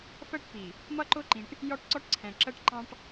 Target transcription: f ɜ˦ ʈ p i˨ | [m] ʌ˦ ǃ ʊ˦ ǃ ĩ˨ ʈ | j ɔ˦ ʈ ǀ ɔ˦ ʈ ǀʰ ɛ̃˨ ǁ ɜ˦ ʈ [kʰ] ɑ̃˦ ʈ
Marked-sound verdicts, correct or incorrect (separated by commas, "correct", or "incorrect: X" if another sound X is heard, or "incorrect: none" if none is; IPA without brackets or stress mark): correct, incorrect: ǃ